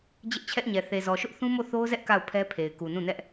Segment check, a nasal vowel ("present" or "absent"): present